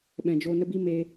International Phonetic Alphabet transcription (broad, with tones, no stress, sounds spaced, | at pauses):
ɓ ɛ̃˨ d͡ʒ o˧ n ə˦ b i˦ m e˧